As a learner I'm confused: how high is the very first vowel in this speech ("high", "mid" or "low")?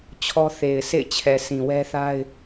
mid